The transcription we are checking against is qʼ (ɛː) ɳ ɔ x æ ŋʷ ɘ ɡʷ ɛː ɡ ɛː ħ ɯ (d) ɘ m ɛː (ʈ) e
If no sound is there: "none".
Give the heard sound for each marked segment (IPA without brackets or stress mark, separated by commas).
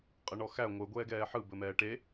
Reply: ɛ, b, ʈ